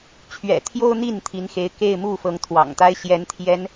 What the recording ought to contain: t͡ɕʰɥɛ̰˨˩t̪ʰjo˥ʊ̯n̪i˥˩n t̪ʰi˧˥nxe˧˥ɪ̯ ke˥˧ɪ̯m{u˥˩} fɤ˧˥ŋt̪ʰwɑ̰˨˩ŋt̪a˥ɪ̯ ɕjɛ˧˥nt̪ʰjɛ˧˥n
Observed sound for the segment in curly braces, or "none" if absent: u˥˩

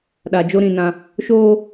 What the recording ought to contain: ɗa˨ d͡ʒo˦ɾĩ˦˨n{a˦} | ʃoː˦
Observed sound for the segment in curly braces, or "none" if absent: ã˦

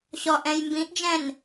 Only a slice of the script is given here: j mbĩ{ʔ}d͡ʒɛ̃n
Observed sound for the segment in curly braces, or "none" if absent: ʔ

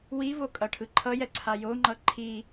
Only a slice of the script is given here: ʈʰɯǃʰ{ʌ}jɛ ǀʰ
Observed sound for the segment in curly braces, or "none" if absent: ʌ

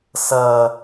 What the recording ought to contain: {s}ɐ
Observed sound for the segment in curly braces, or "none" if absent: s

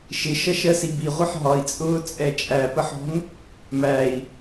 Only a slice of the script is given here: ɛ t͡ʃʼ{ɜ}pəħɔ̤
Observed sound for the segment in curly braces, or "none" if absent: æ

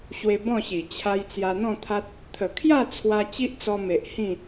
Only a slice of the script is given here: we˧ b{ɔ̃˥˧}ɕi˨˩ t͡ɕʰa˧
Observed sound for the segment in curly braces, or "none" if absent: ɔ̃˥˧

